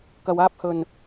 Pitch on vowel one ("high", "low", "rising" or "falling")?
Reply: low